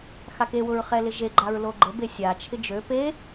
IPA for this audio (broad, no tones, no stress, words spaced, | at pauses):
xakewʊɹ χɛlɪʒeɡ͡ǃaɹ loɡ͡ǃəbe sʲat͡ʃʰɪ d͡ʒø pe